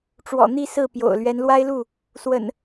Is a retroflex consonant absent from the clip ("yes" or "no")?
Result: no